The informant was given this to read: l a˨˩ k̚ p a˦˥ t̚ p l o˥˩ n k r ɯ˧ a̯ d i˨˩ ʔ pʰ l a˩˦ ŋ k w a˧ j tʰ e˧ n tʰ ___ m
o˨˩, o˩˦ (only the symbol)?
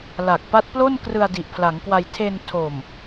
o˨˩